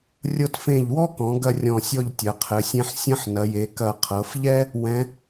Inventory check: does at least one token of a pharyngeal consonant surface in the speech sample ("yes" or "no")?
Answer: yes